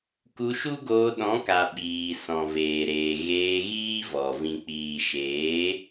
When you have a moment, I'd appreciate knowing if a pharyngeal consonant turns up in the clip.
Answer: no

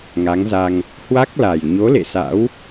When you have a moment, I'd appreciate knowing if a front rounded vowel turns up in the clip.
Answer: no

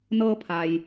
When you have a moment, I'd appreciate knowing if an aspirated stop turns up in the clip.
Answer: yes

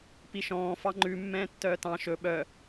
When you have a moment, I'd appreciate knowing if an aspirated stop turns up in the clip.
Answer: no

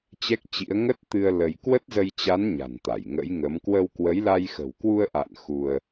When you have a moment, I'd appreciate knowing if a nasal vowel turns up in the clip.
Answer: no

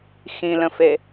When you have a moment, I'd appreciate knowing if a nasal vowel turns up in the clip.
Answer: yes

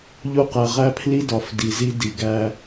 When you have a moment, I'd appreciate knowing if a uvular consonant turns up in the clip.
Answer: yes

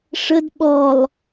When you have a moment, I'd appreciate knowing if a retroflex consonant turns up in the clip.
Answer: yes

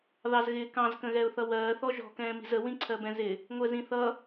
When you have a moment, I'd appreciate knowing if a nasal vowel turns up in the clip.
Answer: yes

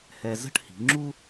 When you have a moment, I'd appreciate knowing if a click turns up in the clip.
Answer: yes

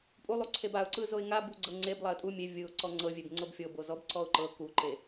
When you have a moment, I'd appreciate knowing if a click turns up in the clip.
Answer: yes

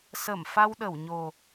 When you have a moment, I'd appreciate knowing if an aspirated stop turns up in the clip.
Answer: no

